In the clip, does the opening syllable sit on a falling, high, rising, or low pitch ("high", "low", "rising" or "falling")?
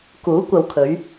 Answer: rising